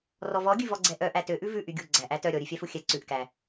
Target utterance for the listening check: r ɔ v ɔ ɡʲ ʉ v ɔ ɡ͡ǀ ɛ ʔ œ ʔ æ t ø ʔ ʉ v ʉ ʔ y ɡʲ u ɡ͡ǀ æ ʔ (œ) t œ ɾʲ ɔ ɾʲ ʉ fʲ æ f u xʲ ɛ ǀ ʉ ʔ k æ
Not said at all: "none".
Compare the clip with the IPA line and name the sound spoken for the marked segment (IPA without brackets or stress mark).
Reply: æ